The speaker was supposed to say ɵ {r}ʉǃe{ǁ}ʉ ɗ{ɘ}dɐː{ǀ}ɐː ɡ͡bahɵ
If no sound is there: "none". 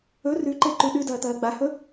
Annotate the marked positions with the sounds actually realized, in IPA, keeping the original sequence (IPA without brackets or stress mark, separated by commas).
r, ǃ, ʉ, t̪